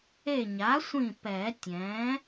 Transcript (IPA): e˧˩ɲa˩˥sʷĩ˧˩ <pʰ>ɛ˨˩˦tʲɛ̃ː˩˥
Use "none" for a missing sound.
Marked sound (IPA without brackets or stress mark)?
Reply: p